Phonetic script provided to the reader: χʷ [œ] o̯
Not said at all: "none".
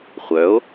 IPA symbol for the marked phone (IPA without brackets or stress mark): œ